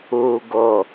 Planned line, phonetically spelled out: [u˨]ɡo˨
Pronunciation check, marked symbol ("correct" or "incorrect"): incorrect